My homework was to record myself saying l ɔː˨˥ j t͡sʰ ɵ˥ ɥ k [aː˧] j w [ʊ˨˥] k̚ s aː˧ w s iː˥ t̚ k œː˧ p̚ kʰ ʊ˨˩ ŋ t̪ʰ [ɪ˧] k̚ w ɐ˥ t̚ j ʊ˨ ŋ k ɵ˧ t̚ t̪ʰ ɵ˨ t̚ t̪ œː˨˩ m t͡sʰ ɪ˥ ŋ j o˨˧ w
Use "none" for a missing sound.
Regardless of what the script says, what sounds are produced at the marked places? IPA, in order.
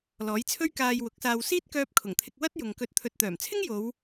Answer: aː˧, ʊ˨˥, ɪ˧

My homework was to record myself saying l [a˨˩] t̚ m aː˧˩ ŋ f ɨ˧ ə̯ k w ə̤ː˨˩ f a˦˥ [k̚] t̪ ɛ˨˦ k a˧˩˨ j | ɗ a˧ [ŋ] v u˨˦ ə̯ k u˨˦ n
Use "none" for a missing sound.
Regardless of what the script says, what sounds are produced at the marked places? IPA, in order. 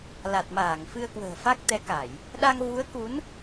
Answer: a˨˩, k̚, ŋ

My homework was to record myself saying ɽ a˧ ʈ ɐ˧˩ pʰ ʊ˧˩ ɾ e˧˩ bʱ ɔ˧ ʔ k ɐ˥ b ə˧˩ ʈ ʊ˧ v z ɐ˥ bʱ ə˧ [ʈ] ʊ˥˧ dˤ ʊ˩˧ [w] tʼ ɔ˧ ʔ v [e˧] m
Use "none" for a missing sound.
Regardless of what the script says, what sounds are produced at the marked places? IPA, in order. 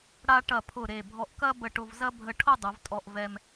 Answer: ʈʰ, v, ɛ˧

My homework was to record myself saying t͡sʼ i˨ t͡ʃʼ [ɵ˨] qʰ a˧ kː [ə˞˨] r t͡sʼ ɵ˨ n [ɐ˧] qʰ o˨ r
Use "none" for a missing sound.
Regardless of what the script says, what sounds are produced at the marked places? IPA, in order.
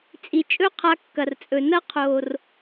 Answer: ɵ˦, ɐ˨, ɐ˦

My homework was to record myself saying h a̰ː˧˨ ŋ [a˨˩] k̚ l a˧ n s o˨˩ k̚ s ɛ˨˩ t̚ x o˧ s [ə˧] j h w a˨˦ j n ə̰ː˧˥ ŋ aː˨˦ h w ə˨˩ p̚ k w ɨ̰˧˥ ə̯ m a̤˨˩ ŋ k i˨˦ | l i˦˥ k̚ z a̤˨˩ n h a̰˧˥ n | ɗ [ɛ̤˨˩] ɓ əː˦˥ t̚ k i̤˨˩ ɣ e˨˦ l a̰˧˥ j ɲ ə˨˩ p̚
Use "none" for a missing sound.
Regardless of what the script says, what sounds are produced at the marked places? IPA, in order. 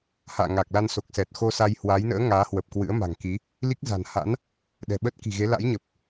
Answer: a˨˩, a˧, ɛ̤˨˩

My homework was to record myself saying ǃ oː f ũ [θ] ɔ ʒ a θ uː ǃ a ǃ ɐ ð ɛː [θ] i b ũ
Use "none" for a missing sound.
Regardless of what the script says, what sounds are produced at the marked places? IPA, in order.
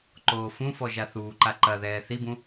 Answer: f, θ

